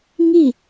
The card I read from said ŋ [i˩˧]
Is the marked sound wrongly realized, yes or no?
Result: yes